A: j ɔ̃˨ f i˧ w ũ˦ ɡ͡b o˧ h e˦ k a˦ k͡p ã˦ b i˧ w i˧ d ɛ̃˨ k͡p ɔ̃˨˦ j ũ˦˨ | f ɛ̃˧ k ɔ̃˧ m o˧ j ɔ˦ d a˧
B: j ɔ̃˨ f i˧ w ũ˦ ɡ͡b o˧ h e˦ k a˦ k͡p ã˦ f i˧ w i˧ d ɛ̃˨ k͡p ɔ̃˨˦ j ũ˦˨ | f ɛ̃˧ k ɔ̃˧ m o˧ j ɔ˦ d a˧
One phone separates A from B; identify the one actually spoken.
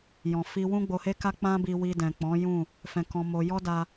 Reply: A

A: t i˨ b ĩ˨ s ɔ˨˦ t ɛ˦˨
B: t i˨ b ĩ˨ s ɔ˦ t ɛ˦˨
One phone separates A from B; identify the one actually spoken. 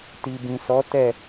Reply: A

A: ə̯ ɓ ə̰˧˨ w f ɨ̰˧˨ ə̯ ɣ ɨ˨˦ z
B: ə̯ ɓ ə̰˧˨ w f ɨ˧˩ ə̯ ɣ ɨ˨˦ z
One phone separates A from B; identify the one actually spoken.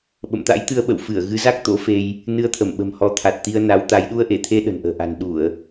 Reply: B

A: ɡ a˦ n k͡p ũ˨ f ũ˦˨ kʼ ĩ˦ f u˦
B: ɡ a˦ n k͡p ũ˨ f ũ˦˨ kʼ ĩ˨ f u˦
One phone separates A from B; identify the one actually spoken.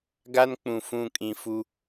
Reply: B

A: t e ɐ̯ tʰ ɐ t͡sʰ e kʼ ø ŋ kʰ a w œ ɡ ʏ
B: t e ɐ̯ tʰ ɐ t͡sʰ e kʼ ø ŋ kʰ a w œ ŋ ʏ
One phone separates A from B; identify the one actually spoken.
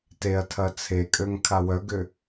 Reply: A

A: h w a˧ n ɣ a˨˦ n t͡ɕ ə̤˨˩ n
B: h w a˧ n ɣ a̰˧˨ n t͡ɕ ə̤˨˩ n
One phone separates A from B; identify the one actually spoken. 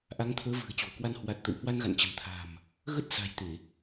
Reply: B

